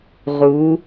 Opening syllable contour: rising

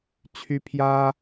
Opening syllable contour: high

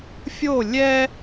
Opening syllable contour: falling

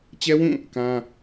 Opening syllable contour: high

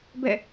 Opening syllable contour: falling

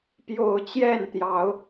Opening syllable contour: low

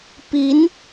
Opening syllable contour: rising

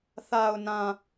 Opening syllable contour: low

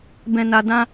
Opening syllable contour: low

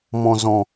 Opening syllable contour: low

